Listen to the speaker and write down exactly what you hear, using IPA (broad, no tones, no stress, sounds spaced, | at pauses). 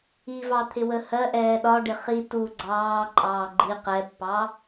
i v ɑ t̪ʰ ɪ w ə h ɜ ʔ ɛː ɗ ɒ ɖ ɪ χ i t u ɡ͡ǀ ɑː ǃʼ ɑː ɡ͡ǃ i q ɛ pː ɑ